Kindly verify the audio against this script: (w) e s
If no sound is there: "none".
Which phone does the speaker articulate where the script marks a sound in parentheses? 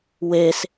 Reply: w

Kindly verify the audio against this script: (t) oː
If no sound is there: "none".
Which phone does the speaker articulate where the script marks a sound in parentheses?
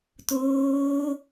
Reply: t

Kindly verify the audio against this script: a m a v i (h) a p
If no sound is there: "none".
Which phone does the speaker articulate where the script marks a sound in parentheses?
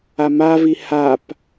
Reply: h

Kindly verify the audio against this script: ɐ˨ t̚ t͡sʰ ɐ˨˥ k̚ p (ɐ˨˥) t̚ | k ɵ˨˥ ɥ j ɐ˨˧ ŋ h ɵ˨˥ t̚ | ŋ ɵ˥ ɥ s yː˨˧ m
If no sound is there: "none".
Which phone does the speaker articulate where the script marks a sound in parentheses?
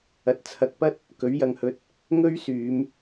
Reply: ɐ˥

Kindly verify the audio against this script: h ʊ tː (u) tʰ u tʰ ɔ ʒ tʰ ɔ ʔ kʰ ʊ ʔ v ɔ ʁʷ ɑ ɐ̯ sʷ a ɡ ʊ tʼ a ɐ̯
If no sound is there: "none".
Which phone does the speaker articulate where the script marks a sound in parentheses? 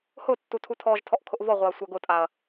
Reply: u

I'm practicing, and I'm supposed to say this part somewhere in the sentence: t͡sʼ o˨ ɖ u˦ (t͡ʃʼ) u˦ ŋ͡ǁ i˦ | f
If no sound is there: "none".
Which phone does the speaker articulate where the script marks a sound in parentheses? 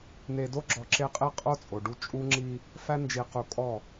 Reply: t͡ʃʼ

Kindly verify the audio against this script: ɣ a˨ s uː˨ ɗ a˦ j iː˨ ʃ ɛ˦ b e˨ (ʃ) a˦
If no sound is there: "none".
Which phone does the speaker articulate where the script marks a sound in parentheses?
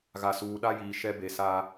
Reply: s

